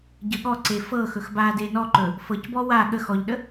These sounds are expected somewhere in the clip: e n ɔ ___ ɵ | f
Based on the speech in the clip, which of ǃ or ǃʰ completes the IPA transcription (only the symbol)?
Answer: ǃ